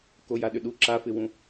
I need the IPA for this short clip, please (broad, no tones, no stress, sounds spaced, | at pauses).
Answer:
k o j a ɗ ʏ ɗ u ǁ a f ɪ w ũ